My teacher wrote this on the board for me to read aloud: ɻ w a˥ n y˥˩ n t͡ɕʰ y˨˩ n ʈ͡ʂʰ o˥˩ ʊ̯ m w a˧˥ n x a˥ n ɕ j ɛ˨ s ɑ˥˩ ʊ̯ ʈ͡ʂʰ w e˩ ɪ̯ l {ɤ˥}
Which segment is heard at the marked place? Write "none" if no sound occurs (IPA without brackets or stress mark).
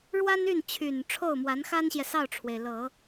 ɤ˨˩˦